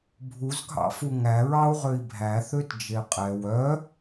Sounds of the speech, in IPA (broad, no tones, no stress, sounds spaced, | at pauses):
bʱ u z ɡʱ ɑ̰ f u ŋ æ ɹ ɑ u̯ ʁ ø i̯ bʱ æ θ ø t d͡ʒ e qʼ ɛ w œ